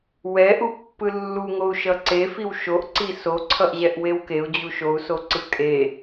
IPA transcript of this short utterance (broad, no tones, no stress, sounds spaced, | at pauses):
w ɛ ʔ u pː ɯ lː u ŋ o u̯ ʃ ʌ ǀ e f i w ʃ o ʔ ǀ i s o ǀʰ ʌ ʔ ʑ ɛ ʔ w e w k e u̯ d͡ʑ u ʃ o u̯ s o ǀ ɯ kʼ e